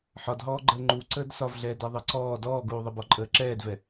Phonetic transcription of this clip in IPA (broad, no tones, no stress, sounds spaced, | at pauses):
ħ ɒ d ɦ ɔː ɡ͡ǃ əː ŋ͡ǃ u ǀ əː d s ɒ v ɮ ɛː d ɛ ðˤ ɛ ǀ ɔː d ɔː ɡ uː ðˤ ə b ɔ ǃʼ əː ǁ ɛː d v ɛ